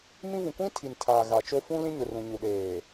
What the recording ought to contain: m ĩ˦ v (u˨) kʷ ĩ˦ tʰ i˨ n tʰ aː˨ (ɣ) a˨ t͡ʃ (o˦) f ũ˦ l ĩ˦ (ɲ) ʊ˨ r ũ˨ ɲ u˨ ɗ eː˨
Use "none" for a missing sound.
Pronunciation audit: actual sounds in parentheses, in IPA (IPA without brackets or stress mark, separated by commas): ũ˨, ɣ, o˦, ɲ